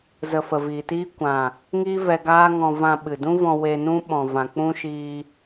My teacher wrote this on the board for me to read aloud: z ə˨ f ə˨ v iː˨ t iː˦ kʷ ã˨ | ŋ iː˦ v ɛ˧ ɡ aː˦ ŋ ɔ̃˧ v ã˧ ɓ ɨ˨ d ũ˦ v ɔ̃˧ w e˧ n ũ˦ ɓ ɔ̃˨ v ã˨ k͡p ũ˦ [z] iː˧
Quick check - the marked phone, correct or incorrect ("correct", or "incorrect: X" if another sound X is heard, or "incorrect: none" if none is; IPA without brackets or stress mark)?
incorrect: ʃ